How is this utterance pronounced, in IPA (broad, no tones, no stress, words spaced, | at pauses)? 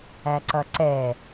æǀʌǀɛ